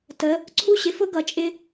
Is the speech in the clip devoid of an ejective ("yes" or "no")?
no